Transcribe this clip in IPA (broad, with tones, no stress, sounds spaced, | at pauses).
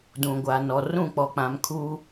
d ũ˨ ɡʷ a˨ n ɔ˨ r ũ˦˨ k͡p ɔ˨ k͡p ã˨˦ m kʰ u˦